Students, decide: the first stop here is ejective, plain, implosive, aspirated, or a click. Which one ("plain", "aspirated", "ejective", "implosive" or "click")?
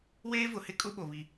ejective